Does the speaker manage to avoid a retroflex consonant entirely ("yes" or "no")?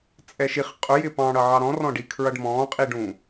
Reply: no